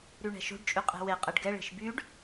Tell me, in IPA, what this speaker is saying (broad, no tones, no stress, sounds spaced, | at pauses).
ɾ y ɳ ɛ̤ ʃ o̤ ɖ t͡ʃʼ y qʼ e̤ w e qʼ ɛ ɖ ɡ ɛ ɭ e̤ ʃ b y ɖ